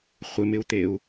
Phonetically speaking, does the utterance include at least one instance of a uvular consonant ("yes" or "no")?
yes